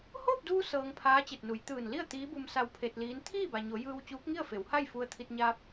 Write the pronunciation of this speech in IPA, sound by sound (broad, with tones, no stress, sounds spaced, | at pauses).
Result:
h oː˥˨ p̚ d uː˧ s ɤː˧ ŋ pʰ aː˧˥ t͡ɕ e˧˩ t̚ n u˩˧ j t̪ ɯː˧˩ n l i˥˨ ə̯ t̪ iː˧˥ b u˧ m s a˧ w pʰ e˧ t̚ l iː˧˥ n t̪ʰ iː˥˨ b a˩ ɲ o˩˧ j ɯː˧ w t͡ɕ uː˧˥ k̚ ŋ i˥˨ ə̯ f e˩˧ w h a˥˨ j f u˧ ə̯ t̪ʰ i˧ t̚ ɲ aː˧ p̚